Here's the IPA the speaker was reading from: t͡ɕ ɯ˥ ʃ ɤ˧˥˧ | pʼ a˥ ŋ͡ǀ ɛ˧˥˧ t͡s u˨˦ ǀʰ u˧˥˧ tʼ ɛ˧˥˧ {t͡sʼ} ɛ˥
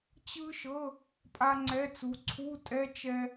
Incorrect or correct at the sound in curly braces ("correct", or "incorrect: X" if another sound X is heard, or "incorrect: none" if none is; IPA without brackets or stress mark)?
incorrect: t͡ʃ